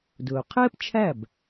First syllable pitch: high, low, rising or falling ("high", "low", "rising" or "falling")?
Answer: low